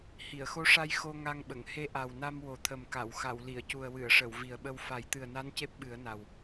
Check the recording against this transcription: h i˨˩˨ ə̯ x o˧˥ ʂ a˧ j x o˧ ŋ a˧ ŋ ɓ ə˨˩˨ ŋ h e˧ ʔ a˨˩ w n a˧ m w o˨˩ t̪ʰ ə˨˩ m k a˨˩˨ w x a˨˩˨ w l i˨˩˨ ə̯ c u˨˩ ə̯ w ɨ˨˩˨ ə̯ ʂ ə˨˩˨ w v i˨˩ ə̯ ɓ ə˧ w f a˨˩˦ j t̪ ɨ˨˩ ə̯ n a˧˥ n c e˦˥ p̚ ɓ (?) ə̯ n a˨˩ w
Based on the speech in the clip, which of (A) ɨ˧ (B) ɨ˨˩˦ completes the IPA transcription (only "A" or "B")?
B